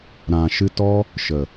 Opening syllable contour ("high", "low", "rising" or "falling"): low